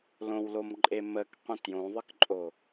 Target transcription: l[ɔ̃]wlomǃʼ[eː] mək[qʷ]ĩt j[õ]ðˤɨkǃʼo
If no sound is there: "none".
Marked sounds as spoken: õ, e, qʷ, õ

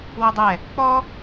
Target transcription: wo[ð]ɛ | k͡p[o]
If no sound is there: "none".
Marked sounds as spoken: dˤ, ɔ

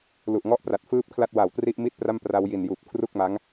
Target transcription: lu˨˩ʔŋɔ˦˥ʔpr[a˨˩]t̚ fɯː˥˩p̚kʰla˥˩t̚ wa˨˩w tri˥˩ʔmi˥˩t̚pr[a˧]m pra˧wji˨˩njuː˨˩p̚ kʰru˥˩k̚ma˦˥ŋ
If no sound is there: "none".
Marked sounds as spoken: a˨˩, a˥˩

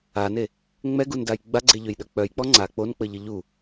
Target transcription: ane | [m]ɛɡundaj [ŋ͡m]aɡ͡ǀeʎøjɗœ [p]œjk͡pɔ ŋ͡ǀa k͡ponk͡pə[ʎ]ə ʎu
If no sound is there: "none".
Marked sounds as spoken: ŋ͡m, ɡ͡b, k͡p, ʎ

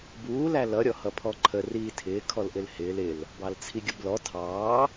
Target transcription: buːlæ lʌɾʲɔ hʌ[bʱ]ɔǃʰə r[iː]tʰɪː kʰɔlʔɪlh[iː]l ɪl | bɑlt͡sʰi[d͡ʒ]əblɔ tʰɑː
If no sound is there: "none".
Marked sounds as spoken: pʰ, iː, ɪː, ɡʲ

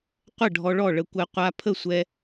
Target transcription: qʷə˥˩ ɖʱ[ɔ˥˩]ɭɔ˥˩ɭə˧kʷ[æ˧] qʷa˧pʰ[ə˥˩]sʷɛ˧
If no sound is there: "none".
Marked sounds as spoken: ɔ˧, ɛ˧, ə˥˩

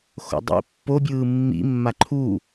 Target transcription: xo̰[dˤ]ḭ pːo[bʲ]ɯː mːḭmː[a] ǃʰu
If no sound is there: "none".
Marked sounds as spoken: dˤ, bʲ, a

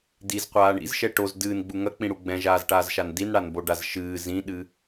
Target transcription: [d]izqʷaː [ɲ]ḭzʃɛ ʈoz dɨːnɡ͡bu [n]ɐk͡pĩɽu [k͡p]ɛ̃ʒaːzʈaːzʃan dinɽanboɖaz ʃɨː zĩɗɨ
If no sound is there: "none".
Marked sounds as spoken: d, ɳ, ŋ, ɡ͡b

